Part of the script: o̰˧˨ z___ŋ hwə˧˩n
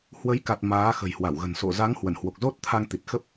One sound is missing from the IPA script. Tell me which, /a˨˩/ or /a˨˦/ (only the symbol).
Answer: a˨˦